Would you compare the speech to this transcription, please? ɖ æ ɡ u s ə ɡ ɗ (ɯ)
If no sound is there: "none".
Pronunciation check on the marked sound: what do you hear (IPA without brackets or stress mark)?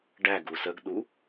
u